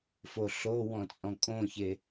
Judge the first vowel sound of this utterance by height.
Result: mid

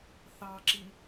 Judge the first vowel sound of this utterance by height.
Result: low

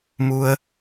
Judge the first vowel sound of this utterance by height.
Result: high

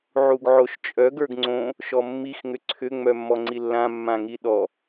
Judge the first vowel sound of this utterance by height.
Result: high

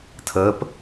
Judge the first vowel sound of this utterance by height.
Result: mid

